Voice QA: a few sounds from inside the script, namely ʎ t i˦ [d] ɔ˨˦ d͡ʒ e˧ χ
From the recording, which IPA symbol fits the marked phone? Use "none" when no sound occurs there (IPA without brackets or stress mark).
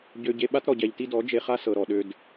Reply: d